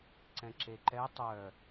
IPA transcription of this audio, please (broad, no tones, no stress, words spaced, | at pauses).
ǀɛ̃ǁeǃɛ tˤœ